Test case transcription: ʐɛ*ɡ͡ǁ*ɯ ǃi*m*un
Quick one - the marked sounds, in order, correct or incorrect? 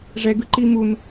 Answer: incorrect: ɡ, correct

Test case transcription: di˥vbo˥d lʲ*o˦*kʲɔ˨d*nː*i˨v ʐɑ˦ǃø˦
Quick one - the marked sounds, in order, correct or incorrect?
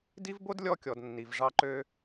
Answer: incorrect: ɔ˦, correct

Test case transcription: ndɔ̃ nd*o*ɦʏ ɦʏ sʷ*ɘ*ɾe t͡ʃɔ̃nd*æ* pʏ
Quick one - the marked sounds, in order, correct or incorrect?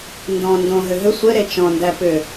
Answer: incorrect: õ, correct, correct

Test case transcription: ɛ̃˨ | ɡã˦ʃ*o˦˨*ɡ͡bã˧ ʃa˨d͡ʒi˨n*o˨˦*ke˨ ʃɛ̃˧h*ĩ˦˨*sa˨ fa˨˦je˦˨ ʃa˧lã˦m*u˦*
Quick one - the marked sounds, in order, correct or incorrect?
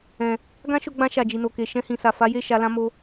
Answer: incorrect: o˧, incorrect: o˨, incorrect: ĩ˨, incorrect: o˦

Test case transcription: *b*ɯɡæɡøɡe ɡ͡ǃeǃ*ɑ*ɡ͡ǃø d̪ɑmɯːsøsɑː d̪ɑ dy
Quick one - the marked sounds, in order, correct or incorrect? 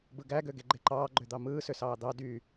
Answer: correct, incorrect: ɑː

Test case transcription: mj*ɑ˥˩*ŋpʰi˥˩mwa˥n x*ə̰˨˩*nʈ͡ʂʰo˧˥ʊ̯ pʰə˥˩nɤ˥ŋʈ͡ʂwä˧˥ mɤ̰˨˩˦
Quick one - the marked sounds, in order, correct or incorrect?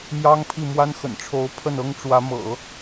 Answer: incorrect: ɑ˥, correct

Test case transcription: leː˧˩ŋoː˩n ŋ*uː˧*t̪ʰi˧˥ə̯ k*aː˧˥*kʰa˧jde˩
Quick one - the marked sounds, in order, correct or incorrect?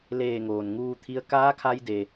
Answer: correct, correct

